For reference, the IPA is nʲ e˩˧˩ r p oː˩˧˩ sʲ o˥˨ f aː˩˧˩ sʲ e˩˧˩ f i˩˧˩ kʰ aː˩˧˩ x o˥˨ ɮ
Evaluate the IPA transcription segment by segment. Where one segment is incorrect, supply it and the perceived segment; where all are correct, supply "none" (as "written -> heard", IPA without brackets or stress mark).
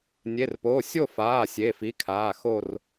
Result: ɮ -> r